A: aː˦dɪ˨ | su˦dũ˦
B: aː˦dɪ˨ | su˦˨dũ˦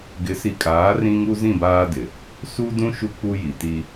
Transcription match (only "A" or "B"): A